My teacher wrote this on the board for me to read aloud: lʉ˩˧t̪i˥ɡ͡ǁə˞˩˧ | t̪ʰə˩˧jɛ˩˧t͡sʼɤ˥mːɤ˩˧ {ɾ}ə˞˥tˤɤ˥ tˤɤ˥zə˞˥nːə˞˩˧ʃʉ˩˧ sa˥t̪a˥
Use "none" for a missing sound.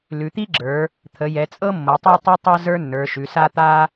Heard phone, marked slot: tˤ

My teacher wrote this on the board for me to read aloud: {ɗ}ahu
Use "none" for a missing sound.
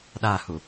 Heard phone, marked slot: ɗ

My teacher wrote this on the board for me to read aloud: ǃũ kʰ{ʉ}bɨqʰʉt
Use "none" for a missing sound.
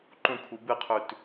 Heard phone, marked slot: u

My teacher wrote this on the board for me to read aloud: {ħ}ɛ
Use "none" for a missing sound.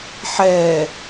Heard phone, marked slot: ħ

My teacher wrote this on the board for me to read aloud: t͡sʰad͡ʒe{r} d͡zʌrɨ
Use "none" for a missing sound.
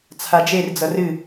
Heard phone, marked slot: r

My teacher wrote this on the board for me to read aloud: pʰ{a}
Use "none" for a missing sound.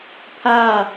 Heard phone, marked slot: a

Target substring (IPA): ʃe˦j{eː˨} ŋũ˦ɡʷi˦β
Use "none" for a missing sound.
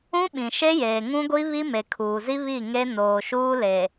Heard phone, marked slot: eː˨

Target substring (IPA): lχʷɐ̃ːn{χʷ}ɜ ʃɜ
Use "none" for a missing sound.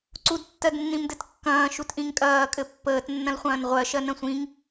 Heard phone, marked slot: ʁʷ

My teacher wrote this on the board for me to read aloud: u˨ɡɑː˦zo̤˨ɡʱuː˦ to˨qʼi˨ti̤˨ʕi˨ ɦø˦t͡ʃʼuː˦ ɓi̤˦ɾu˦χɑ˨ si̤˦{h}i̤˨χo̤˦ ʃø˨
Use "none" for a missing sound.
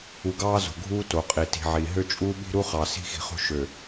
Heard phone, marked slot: x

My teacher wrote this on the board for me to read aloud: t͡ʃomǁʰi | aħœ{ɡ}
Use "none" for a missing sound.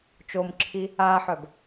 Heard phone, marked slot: b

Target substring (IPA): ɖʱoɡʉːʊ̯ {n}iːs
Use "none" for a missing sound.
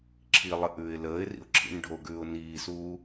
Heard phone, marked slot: n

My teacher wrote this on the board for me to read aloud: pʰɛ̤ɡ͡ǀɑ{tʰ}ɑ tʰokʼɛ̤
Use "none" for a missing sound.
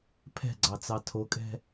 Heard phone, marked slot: t͡s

